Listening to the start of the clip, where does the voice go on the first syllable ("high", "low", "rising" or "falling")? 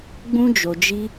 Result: high